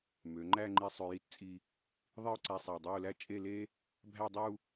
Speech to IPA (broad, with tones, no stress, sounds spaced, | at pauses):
m ø˩˧ ŋ͡ǃ æ˥˧ ŋ͡ǃ i˧ sˤ ø˧ j i˥˧ t t͡sʼ i˧ | ðˤ i˥˧ ʊ̯ ǀ æ˧ sˤ æ˨˩ dˤ ø˥˧ ʊ̯ l æ˥ t͡ʃʼ e˥˧ l e˥ | bʱ æ˥˧ dˤ u˥˧